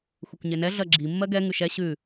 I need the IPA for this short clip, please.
xʷ e kʷ ɲ e n ɛ ɮ ɜ ɡ͡ǁ i mː ɜ ɡ ɛ ŋ ʉ ʃ ɛ ɕ ʉ

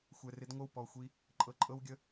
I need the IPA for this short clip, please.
xʷ ɛ˨ r ɪ˦ d ŋʷ ə˦˨ w p ɔ˨ xʷ i˦ | ǃʼ ɤ˨ ǃʼ ɤ˦ w ɡʲ ə˦

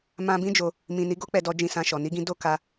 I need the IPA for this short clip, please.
m ã˧ b ĩ˦ d͡ʒ o˧ | m ĩ˨ n i˨˦ ɡ o˦ k͡p ɛ˧ d ɔ˧ d͡ʒ ĩ˧ s ã˧ ʃ ɔ˨ n i˧ ɡ ĩ˧ d o˦ k a˧

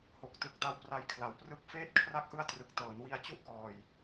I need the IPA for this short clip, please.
h o˨˩ k̚ t ɯ˨˩ k̚ d a˧ w p r a˧ j kʰ l a˩˦ w p r ɯ˦˥ k̚ f eː˦˥ t̚ kʰ r a˦˥ k̚ ʔ ɯ˦˥ a̯ t r ɯ˨˩ k̚ t ɤː˩˦ n w i˧ a̯ t͡ɕ u˥˩ ʔ k ɔː˨˩ j

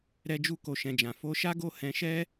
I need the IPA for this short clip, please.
ɾ ɛ˧ d͡ʒ u˦ k o˧ ʃ ɛ̃˨ d͡ʒ ã˨ f o˧ ʃ a˦ ɡ o˦˨ h ɛ̃˧ ʃ ɛ˦

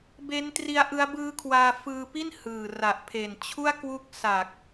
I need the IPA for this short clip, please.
b e˦˥ n t r i˦˥ a̯ ʔ ɯ˦˥ a̯ b ɯː˦˥ kʰ w aː˧ f ɯː˧ p i˥˩ n h ɯː˨˩ r a˨˩ ʔ pʰ e˨˩ n t͡ɕʰ u˥˩ a̯ k w u˦˥ k̚ s a˨˩ k̚

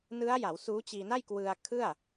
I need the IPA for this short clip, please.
n ɯ˦˥ a̯ j a˩˦ w s uː˦˥ t͡ɕ iː˧ n a˥˩ j k w ɯ˧ a̯ kʰ ɯ˥˩ a̯

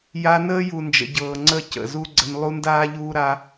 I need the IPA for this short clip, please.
j a˧ n əː˦ j u˨ n d͡ʒ ə̰˨ ɟ ɤː˨ ŋ͡ǀ ə˦˨ c ə̰˨ z u˦ ɡ͡ǀ ə˧ n lˠ u˦ n d aː˦ ʎ uː˦ ɾ a˧

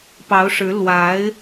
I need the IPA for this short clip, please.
p ɑ˧˥ ʊ̯ ʂ ɻ̩˧˥ l w a˧˥ ɪ̯

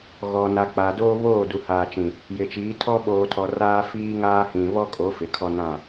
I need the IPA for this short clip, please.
ɣ ɔ˨ n a˨ k͡p a˨ d oː˦ β oː˦˨ d u˨ h aː˨ t͡ʃ ĩ˨ | j ɪ˨ t͡ʃ iː˨˦ tʰ ɔ˦ ɓ oː˨ tʰ ɔ˨ r aː˦ f iː˦ ŋ aː˦ h ĩ˨ β ɔ˦ kʼ o˨˦ f ɪ˨ kʰ ɔ˦ n ã˦˨

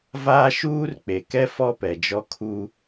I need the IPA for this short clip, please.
v aː˦ ʃ uː˦ r k͡p e˨ k ɛ˦ f ɔ˦ p ɛ˨ d͡ʒ ɔ˦ kʰ u˦

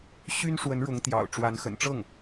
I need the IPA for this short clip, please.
ɕ y˥ n ʂ w ə˧˥ n ɻ ʊ˧˥ ŋ t̪ j ɑ̰˨˩ ʊ̯ ʈ͡ʂ w a˧˥ n x ə̰˨˩ n ʈ͡ʂ ɤ˥˩ ŋ

